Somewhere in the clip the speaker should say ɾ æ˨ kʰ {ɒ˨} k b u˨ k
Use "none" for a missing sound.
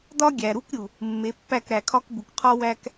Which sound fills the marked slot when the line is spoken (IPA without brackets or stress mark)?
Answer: ɒ˦